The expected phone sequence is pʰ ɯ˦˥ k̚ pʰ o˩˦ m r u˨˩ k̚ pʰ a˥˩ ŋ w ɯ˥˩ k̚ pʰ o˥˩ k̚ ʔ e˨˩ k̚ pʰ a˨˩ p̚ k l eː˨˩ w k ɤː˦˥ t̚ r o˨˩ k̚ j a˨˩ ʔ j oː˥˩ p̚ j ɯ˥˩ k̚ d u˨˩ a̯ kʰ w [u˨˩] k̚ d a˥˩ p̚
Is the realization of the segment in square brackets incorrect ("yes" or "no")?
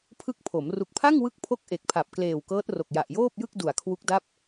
yes